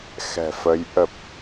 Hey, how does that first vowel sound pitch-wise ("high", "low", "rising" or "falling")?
low